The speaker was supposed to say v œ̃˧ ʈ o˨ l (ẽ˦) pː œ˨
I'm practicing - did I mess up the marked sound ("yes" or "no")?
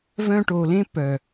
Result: no